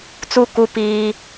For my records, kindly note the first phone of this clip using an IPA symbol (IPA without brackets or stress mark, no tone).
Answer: t͡s